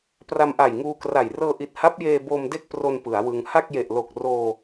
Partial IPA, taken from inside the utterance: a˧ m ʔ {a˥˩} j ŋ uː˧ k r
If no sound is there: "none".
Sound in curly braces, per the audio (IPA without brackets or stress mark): a˨˩